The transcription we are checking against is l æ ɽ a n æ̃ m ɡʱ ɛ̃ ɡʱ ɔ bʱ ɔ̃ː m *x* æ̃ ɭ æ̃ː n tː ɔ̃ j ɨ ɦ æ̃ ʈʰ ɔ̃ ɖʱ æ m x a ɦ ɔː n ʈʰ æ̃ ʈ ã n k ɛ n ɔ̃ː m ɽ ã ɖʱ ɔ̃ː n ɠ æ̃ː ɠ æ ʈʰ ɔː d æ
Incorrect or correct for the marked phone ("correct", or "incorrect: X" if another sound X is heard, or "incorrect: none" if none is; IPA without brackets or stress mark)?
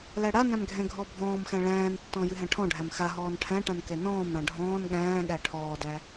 correct